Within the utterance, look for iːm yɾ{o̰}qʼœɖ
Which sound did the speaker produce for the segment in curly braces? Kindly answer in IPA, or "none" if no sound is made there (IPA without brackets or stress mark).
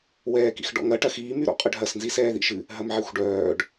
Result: ɔ̰